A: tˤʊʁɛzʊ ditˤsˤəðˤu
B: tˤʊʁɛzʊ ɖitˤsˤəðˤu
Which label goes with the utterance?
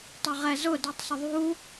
A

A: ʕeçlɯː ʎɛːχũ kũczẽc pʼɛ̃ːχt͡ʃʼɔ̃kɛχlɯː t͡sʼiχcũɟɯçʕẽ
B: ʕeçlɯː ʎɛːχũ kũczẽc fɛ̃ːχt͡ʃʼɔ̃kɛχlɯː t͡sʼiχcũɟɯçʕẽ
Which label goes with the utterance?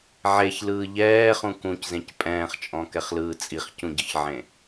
A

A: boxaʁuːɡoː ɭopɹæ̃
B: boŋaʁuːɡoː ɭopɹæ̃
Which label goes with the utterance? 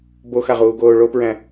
A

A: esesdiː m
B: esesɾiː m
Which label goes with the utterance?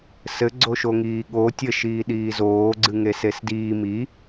A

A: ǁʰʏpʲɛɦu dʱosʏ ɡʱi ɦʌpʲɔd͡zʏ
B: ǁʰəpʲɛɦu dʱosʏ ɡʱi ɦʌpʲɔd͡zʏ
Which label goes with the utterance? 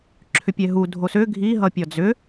A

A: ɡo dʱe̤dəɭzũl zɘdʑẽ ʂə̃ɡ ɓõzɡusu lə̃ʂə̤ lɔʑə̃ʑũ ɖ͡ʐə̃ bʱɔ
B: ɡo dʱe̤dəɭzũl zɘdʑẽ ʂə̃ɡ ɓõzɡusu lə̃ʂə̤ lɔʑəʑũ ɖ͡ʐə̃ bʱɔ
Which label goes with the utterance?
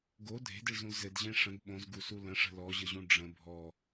B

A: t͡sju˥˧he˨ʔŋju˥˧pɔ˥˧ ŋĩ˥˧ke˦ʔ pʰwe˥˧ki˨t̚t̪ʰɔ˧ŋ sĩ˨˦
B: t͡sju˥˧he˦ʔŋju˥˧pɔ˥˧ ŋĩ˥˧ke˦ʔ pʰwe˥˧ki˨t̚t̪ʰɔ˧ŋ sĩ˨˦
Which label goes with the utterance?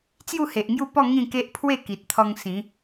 A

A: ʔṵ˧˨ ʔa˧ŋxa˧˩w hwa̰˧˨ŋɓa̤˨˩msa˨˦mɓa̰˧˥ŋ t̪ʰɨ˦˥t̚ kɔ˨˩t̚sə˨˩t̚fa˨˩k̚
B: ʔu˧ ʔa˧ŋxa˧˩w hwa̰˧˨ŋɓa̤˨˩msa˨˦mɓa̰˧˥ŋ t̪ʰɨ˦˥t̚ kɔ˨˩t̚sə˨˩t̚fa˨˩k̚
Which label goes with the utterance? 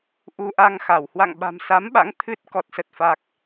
B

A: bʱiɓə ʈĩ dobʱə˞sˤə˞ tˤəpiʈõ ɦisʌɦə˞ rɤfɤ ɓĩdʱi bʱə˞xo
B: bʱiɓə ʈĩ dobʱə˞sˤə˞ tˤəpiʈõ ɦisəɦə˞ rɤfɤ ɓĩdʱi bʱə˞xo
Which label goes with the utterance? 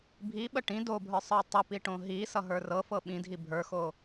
A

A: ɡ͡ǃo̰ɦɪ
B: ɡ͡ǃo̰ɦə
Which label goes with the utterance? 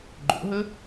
B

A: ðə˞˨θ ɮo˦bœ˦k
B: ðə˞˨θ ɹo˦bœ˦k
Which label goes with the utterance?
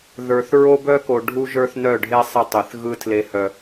B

